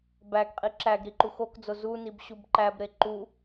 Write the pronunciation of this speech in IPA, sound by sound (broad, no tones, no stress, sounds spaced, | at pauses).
b æ ɡ qʼ i ǁ æ ɡ ɾ i ǃ u x o k d͡z o z u n i b ɕ u b ǃ æ b ɾ e ǃ u